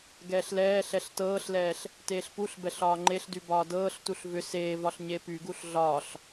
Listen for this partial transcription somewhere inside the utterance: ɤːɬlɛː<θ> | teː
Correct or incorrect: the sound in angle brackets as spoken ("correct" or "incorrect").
incorrect